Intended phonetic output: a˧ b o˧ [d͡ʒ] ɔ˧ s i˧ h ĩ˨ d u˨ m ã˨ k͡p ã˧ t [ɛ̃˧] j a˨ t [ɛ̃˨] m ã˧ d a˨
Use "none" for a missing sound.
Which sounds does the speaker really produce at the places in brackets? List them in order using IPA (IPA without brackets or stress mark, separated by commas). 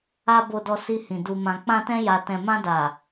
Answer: d, ɛ̃˧, ɛ̃˨